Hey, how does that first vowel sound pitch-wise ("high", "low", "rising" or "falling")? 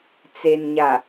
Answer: low